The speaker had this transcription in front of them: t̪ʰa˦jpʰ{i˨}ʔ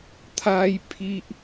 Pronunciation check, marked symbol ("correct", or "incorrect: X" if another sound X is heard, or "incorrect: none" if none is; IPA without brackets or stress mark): incorrect: i˦